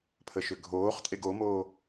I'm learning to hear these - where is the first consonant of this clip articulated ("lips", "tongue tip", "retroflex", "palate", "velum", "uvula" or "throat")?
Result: lips